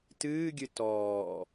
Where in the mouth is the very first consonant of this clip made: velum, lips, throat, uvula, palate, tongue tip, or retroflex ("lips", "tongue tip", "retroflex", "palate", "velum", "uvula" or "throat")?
tongue tip